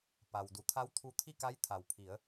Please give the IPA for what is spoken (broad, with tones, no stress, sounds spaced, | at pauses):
p a˩ w d u˩˧ t̪ʰ a˧˥ w t̪ʰ u˧ t̪ʰ i˥˨ k a˧˥ j t̪ʰ a˩ w pʰ i˩˧ ə̯